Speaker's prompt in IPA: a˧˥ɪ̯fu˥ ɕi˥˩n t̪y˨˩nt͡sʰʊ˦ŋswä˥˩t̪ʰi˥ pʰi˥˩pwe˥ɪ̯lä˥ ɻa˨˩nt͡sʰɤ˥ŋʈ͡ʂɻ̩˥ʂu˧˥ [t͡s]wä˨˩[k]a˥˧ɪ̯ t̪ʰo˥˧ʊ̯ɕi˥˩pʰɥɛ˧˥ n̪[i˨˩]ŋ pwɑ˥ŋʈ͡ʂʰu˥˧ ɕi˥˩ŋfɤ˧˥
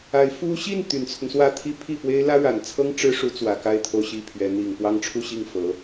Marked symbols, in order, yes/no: yes, yes, yes

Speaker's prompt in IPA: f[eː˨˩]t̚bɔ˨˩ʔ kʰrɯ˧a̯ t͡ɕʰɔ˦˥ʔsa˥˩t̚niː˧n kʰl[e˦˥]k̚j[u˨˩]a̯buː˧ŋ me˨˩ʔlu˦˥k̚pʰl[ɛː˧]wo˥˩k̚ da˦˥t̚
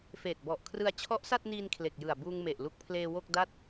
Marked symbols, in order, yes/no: yes, no, no, no

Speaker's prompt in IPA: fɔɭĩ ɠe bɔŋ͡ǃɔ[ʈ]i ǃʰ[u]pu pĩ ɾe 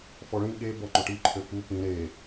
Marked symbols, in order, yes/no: yes, no

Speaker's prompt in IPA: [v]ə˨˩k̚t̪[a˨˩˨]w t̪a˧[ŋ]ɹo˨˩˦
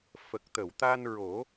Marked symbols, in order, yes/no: no, no, no

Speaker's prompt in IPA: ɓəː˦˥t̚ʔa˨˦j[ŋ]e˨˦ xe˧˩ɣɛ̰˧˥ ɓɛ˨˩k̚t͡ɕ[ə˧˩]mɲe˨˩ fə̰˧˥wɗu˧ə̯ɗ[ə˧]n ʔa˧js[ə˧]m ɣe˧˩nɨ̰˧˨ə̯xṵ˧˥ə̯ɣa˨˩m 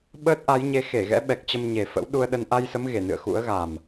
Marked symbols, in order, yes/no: no, no, yes, no

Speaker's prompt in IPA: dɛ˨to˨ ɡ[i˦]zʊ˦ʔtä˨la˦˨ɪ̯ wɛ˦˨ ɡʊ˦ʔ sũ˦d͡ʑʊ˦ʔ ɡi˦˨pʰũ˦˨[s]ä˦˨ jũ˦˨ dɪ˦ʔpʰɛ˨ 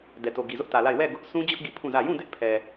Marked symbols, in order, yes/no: no, no

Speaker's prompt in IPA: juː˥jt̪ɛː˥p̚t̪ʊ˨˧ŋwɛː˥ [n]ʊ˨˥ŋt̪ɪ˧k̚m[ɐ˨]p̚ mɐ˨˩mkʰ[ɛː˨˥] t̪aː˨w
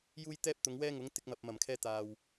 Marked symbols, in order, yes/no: no, yes, no

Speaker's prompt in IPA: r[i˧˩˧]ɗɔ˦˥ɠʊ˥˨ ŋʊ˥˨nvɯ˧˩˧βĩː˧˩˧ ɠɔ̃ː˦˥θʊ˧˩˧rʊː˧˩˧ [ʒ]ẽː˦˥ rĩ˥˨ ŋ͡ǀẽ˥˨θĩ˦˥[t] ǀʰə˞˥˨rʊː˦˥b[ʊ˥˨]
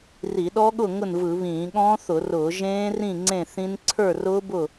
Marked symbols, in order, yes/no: yes, yes, no, yes

